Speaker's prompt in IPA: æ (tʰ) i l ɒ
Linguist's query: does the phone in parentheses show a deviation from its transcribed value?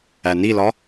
yes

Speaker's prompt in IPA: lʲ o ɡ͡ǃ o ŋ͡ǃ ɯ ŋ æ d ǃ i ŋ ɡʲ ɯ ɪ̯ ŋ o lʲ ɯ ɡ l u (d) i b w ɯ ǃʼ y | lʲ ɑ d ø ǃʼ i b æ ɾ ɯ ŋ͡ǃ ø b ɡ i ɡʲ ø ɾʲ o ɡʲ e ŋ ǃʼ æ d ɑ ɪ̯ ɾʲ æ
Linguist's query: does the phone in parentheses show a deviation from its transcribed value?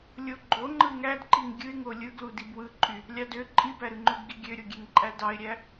no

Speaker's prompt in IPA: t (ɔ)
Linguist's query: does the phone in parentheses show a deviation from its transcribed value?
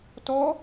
no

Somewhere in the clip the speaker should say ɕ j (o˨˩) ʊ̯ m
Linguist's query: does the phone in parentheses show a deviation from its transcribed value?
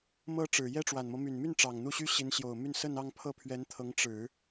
no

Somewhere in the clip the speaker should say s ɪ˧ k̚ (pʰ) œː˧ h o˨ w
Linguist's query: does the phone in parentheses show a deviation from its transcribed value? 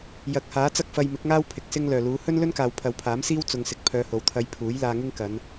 no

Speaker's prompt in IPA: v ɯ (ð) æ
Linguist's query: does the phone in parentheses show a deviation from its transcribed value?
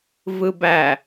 yes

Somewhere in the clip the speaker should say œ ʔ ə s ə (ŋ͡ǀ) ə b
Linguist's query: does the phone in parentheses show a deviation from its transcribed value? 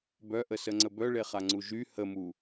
no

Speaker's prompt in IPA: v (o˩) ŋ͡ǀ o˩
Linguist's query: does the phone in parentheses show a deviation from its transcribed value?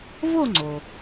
yes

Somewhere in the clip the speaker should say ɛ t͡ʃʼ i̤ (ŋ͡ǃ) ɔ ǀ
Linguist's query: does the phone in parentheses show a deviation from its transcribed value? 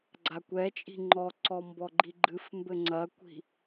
no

